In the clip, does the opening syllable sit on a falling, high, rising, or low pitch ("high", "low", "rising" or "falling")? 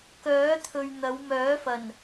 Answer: rising